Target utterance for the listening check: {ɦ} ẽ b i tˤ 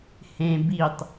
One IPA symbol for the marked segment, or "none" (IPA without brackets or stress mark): h